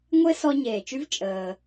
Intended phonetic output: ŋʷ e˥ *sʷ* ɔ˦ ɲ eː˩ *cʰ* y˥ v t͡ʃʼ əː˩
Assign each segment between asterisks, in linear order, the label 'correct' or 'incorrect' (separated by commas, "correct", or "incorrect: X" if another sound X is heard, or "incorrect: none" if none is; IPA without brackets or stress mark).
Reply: incorrect: s, incorrect: t͡ʃ